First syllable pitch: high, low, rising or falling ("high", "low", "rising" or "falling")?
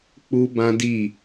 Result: high